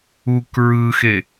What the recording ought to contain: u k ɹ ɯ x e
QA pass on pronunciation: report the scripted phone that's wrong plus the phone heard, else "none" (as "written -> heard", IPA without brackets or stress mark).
none